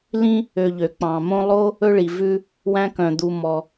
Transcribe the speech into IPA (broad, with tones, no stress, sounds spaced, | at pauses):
l ĩ˦ | ø˨ ʎ ø˩ k͡p ɑ̃˩ m õ˦ lˠ o˥ | ɵ˦ ɭ i˩ v ʉ˦ | w æ̃˦ k œ̃˩ d̪ u˨ m ɔ˩